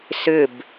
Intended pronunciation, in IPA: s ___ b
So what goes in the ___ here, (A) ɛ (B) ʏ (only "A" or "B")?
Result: B